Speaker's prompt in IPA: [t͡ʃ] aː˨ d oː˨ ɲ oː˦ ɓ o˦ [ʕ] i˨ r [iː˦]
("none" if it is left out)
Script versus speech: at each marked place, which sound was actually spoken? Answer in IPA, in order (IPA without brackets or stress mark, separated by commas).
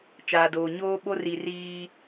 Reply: t͡ʃ, r, iː˦